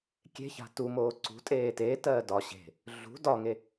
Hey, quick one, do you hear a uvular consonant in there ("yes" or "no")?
no